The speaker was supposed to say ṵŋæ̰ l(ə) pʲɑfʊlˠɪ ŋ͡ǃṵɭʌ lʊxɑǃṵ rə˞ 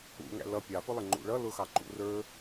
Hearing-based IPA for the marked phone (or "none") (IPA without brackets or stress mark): ʌ